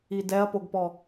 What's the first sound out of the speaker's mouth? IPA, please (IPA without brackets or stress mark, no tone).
i